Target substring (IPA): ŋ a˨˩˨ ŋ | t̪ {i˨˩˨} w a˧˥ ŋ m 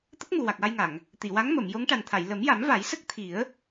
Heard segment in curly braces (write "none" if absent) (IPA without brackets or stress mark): i˨˩˨